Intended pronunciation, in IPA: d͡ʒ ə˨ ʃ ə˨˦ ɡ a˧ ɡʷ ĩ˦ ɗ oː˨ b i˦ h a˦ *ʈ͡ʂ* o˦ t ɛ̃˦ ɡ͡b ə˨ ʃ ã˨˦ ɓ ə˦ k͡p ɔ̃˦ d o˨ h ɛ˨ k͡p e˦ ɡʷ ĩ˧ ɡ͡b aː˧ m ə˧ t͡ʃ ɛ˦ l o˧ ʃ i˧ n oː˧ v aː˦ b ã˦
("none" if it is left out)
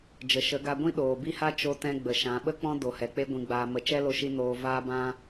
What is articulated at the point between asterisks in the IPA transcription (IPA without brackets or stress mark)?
t͡ʃ